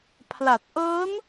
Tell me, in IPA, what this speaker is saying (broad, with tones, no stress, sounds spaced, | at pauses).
pʰ l a˨˩ t̚ ʔ ɤː˦˥ n